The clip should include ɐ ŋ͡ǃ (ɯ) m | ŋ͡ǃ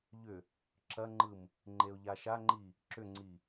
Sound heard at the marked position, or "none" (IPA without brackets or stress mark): ɯ